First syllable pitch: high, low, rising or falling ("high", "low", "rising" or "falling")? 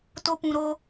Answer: high